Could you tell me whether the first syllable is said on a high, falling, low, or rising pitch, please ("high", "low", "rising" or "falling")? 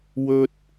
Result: high